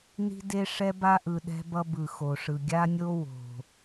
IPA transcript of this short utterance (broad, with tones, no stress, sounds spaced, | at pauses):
n i̤˦ d e˦ ʂ ɛ˦ b a˦ ʔ ɯ˨ ɗ ɛ̤˦ b ʌ˦ b ɯ˨ x o˨ ʂ ɯ˨ ɡʲ a˦ nʲ o˦ w o̤˨